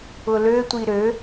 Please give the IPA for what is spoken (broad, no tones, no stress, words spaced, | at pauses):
ʊløtʷi ɾø